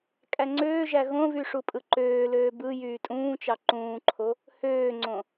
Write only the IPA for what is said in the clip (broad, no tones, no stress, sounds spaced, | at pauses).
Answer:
kʼ æ ŋ͡ǀ øː ʒ æ ɣ õ v y ʂ u pʼ ɯ ǃ øː l øː b ɯ j yː tʼ ũː t͡ʃ ɑ ǃ ũː ǃʰ o | h øː ŋ͡ǀ õ